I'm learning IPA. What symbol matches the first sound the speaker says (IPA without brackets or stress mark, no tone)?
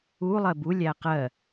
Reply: u